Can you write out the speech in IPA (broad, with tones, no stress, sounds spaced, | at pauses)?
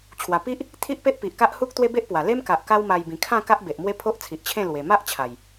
t͡ɕʰ w a˨˩ p i˦ ʔ | t̪ʰ i˦ ʔ p e˦ ʔ p i˨ ʔ k a˦ ʔ h u˦ k̚ t̪ w e˦ b e˦ ʔ p w a˨˩ l e˦ m k a˨ ʔ k a˦ w m a˧ j b ĩ˨˩ kʰ ã˥˧ k a˦ ʔ b e˨ ʔ m w e˦ pʰ o˦ ʔ t͡sʰ i˨ ʔ t͡ɕʰ ẽ˥˧ l w e˨˩ m a˦ ʔ t͡ɕʰ a˨˩ j